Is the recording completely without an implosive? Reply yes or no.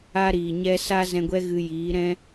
yes